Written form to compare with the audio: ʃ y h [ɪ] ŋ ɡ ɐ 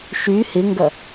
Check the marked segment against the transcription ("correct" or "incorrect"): correct